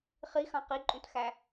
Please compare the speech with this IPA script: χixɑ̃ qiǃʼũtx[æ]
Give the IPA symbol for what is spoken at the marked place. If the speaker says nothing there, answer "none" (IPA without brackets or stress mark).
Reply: æ